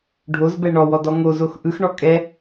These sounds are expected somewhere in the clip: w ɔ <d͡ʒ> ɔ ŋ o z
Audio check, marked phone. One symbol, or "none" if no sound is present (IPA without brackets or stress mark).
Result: d